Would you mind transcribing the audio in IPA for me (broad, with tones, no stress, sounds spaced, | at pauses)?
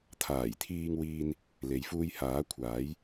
t̪ʰ aː˨˩ j t̪ʰ iː˧ ŋ w iː˧ n | l e˨˧ j f uː˧ j h aː˨˥ kʷʰ aː˨˥ j